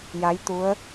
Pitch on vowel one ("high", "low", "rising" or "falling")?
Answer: rising